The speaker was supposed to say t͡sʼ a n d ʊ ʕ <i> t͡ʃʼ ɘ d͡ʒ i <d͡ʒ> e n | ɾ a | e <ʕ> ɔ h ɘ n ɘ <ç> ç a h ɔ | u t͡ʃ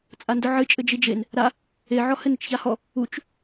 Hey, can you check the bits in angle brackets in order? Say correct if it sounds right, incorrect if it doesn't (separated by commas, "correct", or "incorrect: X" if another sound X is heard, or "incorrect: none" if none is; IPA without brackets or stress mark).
incorrect: ɨ, correct, correct, incorrect: t͡ʃ